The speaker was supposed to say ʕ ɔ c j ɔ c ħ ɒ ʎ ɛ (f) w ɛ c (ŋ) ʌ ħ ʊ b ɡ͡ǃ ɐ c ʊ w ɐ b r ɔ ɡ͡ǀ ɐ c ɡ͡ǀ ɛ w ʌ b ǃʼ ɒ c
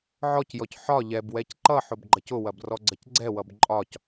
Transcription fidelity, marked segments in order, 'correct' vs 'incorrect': incorrect: b, incorrect: ǃ

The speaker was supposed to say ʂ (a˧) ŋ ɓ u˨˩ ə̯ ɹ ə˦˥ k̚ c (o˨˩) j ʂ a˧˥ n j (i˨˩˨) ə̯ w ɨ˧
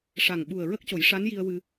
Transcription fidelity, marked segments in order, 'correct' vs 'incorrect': incorrect: a˨˩, incorrect: o˨˩˦, incorrect: i˧

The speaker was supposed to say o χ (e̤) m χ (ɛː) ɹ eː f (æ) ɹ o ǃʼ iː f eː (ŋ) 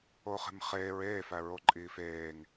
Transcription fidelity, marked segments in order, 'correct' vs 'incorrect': correct, incorrect: eː, correct, correct

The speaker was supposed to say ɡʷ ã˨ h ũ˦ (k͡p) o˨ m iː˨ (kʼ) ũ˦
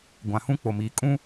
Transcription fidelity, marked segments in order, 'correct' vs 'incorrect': correct, correct

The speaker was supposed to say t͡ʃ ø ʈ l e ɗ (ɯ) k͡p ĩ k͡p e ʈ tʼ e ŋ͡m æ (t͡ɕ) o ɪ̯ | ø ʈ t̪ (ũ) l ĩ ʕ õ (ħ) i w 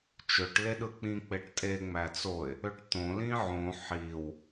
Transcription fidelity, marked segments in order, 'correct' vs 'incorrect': correct, incorrect: t͡s, incorrect: õ, correct

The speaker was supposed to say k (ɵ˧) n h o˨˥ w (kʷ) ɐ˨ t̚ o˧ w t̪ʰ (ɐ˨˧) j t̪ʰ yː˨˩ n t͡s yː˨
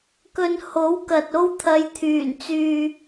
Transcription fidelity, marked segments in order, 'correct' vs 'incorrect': incorrect: ɵ˨, incorrect: k, correct

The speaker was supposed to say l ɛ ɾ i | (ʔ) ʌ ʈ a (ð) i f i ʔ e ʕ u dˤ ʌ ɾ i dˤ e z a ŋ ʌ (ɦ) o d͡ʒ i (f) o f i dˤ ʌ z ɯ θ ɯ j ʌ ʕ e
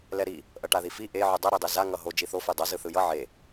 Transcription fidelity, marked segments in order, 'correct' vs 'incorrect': correct, correct, correct, incorrect: θ

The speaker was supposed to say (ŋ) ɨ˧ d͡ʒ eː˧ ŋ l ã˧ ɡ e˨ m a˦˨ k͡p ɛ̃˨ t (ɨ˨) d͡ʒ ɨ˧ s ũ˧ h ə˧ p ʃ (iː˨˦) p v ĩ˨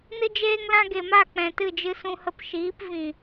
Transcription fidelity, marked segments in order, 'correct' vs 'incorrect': incorrect: n, incorrect: ɨ˦˨, correct

